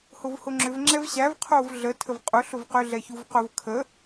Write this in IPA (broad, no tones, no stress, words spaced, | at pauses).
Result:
hʊvhʊŋ͡ǁʏv ŋ͡ǁɛvɕæv qʰovɮə tʰəvqʼʊ ɬʊvqʏ ɮɛçuvqʊv kʰə